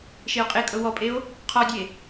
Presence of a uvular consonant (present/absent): present